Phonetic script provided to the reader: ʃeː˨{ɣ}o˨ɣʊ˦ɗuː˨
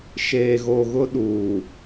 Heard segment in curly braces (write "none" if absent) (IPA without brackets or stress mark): ɣ